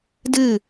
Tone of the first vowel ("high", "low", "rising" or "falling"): falling